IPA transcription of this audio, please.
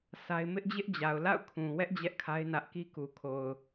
sʰ a˦ ɪ̯ m ɪ˦ ʔ d͡ʑ ɪ˦ ʔ d͡ʑ a˨ ʊ̯ l a̰˦˨ ʊ̯ kʰ ũ˨ w ɛ˦ ʔ d͡ʑ ɛ˦ ʔ kʰ a˦ ɪ̯ n ä˦ ʔ k i˦ k u˨ kʰ o˨ ʊ̯

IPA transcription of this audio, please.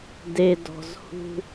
d e d ɔ̤ z h ṳ

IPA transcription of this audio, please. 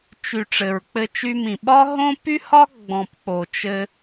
t͡ʃ y˨ ʈ͡ʂ ɘ˨ ɹ k͡p ɘ˧ t͡ʃ y˧ m ĩ˨ ɓ ɒ˦ ɦ õ˦ p y˦ h ɒ˦ ɡ͡b ɔ̃˨ p k͡p o˨ t͡ʃ ɘ˦

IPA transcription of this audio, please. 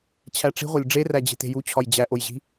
t͡ɕʰ æ ʈ͡ʂ i̤ ʁʷ æ lʲ ɖ͡ʐ e r æ d͡ʑ e̤ t e̤ j u t͡ɕʰ ɒ j d͡ʑ æ ʔ o j ʑ i̤

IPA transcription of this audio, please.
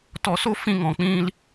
t ɔ˧ s o˦ f ĩ˦ ŋ ɔ̃˧ k͡p ĩ˦ l

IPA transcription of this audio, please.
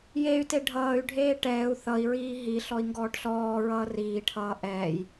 j e y̯ t e ɖʱ ʌː y̯ ɖʱ eː ʈ ɛː u̯ θ ʌ i̯ ɹ iː ɦ i ɬ ɔ i̯ ŋ ɡ ɔː ʈ ɬ ɔː ɹ ʌː r iː ʈʰ ʌː ʔ ɛː j

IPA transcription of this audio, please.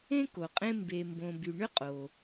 ẽ˥ k o˩ qʼ ẽ˦ m b e˨ m b õ˨ b y˨ ɳ ʏ˥ qʼ o˩

